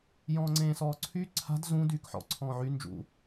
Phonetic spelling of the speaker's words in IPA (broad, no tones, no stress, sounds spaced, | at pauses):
j ɔ̃ː ŋ͡ǀ ẽː s ɔː ǀʰ y ǀʰ a̤ d z ũ d yː k ħ ɔ̰ ǀʰ ɔ̃ː ʕ y n d͡ʒ ṵ